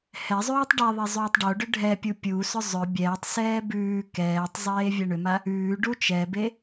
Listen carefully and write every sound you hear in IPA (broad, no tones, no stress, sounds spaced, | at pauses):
h ɛ zˤ ʉː tˤ ɖ ɛ ðˤ e zˤ ʉː tˤ ɖ o ɖ ʏ ɖʱ ɛ pʲ u pʲ u s ʏ zˤ ʏ bʲ ɛː tˤ s ɛː b ʉː k ɛː tˤ zˤ eː vʲ ɛ ɳ ʏ m a | ʉː ɖ u t͡ʃ ɛ b e